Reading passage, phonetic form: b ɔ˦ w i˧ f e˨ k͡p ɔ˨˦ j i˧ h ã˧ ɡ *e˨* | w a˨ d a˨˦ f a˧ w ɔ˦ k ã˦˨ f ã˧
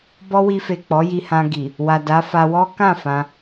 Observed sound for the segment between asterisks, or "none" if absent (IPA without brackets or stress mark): i˨